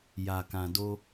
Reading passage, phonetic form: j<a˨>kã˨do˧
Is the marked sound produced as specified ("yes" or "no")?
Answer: yes